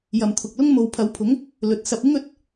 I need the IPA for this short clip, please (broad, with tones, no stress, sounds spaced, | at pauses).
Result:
j ɐ˨ m t̪ʰ ʊ˨ k̚ l ʊ˥ ŋ m o˨ w pʰ ɐ˨˥ w pʰ ʊ˨˥ ŋ | l ɵ˨ t̚ s ɐ˨ p̚ ɪ˥ ŋ ɵ˨˥ t̚